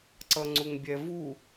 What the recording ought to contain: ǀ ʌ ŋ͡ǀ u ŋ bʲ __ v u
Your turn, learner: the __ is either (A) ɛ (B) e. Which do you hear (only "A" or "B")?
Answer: A